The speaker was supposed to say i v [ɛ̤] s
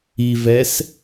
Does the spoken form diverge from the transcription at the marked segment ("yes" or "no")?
yes